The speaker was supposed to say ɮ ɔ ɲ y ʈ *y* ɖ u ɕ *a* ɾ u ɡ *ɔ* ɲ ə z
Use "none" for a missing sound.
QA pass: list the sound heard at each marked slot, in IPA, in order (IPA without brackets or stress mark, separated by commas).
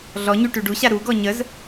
y, a, ɔ